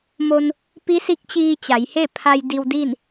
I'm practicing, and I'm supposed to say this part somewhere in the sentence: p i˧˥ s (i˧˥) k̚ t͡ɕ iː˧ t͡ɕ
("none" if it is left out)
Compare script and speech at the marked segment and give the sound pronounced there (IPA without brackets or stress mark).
i˧˥